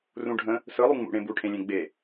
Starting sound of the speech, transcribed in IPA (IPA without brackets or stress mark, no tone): r